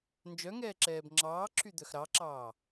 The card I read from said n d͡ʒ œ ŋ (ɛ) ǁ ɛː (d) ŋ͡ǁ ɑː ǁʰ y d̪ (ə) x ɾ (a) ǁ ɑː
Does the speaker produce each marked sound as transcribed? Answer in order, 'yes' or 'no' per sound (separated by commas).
no, no, no, no